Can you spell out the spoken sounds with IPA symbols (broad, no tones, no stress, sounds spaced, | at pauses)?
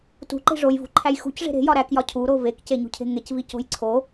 t ṳ ǃ e̤ ʐ o j v ṳ ǃʰ æ j x ṳ c ʐ e̤ ɾ e̤ j ɒ ɾ æ k j ɒ cʰ u ɾ o v e k c e ɲ ṳ cʰ e̤ ŋ e c v i c o̤ j ǀʰ o